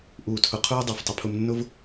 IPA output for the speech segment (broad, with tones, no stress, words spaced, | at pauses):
ʔuː˨tʰʊ˨ qʰuː˦dˤə˞˨ftˤə˧pʰʊ˧m nːʊ˦v